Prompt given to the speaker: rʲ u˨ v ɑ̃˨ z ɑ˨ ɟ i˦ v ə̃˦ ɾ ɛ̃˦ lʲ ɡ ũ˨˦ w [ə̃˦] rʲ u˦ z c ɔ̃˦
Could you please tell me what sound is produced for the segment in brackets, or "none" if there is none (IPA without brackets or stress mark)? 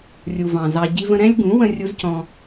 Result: ə̃˦